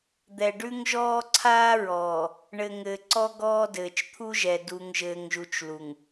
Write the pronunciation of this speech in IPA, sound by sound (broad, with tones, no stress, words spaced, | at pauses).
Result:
d̪ɛ˨ɖʉ˦ŋʒɔː˦ ǀʰaː˦ɹɔː˨ | ɳɘ˨ ŋɘː˨ǀɔ˦ ɡɔː˦ dɘː˨t͡ʃt̪ʰu˦ʒɛ˨ du˨ŋʒɘː˨ŋʒu˨t͡ʃ lu˨ŋ